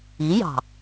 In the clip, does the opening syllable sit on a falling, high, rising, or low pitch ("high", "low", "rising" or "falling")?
rising